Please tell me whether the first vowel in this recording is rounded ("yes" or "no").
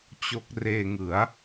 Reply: yes